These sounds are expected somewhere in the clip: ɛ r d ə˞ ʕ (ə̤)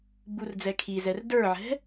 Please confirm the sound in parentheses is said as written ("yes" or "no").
no